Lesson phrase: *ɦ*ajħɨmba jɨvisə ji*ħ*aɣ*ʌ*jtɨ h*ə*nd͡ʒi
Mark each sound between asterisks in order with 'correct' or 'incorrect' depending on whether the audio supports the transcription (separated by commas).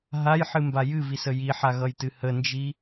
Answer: correct, correct, correct, correct